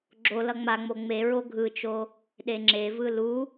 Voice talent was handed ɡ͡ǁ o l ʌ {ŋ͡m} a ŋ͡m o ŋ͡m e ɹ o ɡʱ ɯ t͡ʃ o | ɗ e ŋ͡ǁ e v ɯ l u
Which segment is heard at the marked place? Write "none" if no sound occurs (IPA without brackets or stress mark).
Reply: ŋ͡m